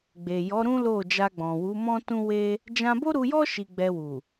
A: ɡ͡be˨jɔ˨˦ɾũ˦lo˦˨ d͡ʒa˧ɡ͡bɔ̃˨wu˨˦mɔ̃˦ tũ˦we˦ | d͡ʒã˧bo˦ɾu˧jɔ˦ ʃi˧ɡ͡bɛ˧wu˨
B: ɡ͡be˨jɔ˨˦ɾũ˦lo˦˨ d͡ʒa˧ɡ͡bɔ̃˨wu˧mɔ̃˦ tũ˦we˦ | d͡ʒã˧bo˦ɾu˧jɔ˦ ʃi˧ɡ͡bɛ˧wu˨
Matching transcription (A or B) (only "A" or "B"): A